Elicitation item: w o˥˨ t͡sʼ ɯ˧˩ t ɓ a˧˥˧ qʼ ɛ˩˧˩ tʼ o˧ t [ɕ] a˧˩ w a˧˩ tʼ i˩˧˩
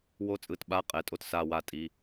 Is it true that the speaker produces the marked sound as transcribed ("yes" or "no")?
no